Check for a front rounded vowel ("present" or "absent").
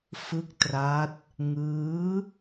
absent